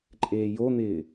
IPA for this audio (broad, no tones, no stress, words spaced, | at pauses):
ǃʼeːjon̪ɪː